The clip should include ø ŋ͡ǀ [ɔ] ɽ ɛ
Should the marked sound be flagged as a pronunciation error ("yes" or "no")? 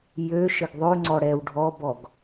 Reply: no